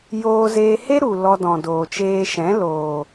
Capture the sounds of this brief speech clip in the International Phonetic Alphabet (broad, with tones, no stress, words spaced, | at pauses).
joː˧zeː˧ he˦ ɾu˨ lɔ˧dɔ̃˨doː˨t͡ʃeː˧ ʃɛ̃˨˦loː˨